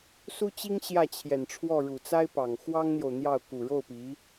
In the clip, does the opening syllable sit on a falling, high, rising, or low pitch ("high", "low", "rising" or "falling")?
high